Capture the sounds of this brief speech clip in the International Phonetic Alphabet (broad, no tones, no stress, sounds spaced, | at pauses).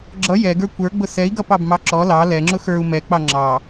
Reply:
ɡ͡ǁ ʌ j ɛ ɡ ə˞ kʷ ə˞ ɡ͡b ʊ s ɛ i̯ ɡ ʌ p ɑ b m ɑ ǁ ɔ l ɑ l ɛ ŋ͡ǁ ʊ x ə˞ u̯ m ɛ k͡p ɑ ŋ͡ǁ ɑ